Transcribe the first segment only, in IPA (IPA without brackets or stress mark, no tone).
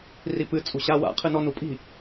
r